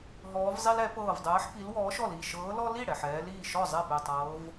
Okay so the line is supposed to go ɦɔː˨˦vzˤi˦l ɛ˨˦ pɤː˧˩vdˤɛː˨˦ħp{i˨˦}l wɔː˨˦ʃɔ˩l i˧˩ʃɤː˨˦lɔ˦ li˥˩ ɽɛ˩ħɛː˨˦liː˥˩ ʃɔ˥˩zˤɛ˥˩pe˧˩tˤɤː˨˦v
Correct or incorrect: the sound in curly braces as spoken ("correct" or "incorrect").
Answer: correct